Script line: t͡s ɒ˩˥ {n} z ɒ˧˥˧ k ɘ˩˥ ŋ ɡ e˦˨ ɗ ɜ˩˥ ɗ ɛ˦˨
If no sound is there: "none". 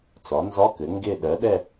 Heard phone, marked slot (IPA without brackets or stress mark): n